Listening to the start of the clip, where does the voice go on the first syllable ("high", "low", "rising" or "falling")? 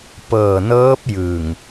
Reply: low